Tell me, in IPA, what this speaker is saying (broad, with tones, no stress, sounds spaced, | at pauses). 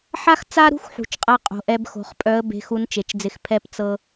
ħ a˥ x t͡s a˥ ɾ ṳ˥ x ħ ṳ˩˧ t͡ʃ qʼ a˧ qʼ o̤˩ ʔ ɛ˧ b x o̤˩˧ χ pʼ œ˧˥ ə̯ b e̤˧˥ x u˧˥ n t͡ʃ e˩˧ t͡ʃ d͡z ɪ˧ x pʰ ɛ˥ p t͡s ɤ˥